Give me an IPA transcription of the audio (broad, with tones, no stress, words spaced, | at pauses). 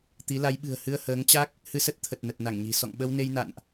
t̪i˨˦la˨˦jɓɨ̤˨˩ə̯ hɨ˧ə̯həː˨˦ŋt͡ɕa˦˥k̚ | hɨ˧sə˦˥t̚t̪ʰə˨˩t̚ nə˨˩t̚ na˧˩ŋɲi̤˨˩ sɔ̰˧˨ŋɓə˧wne˧j na̰˧˨nʔ